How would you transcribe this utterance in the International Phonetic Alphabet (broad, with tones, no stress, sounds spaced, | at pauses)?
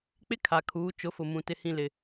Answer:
k͡p ɪ˦ kʰ a˨ kʰ uː˨˦ t͡ʃ ʊ˨˦ f ʊ˨ m ũ˨ t ɪ˨ h ĩ˨ l ɪ˨